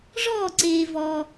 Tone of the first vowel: falling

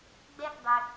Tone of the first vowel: high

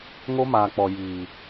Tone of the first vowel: high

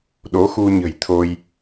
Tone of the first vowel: rising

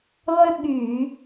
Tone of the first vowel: high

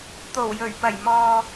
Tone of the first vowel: low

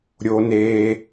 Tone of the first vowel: high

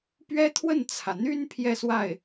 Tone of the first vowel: high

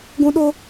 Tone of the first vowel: high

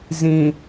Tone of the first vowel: low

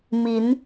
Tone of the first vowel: rising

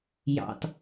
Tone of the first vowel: low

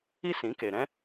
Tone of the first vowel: high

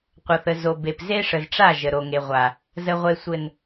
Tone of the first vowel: low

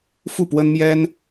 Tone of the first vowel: falling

